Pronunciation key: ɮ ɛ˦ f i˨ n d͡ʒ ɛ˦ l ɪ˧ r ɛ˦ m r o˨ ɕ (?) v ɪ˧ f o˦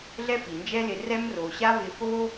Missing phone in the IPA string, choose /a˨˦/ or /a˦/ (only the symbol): a˦